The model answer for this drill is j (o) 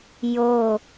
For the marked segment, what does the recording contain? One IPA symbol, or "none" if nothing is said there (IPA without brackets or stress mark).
o